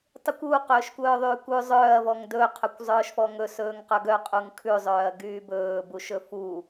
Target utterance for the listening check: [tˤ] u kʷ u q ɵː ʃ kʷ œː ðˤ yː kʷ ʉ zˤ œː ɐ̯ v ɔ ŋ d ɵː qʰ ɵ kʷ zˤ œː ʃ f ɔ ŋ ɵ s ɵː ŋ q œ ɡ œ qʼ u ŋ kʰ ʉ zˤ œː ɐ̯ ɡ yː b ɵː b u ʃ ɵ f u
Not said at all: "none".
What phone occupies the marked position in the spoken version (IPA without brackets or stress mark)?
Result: tˤ